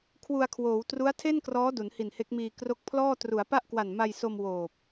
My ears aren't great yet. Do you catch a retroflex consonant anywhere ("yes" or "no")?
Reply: no